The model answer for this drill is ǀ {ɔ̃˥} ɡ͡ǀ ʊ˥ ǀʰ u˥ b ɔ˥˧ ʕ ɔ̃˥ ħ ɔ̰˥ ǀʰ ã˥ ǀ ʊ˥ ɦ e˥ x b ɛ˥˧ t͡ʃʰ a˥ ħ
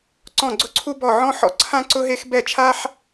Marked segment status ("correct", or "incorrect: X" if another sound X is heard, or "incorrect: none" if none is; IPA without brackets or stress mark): incorrect: ɔ̃˥˧